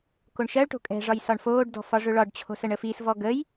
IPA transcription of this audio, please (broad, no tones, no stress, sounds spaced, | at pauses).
k o ɳ ʃ ɜ ɭ ʈ o̤ kʼ ɛ̤ ʐ ɒ j s ɒ ɳ f oː ɖ d ɔ̤ f ɒ ʐ ɵ ɭ ɒ ɖ t͡ɕʰ o̤ s ɜ ɳ ə f i s v ɔ ɡ ə j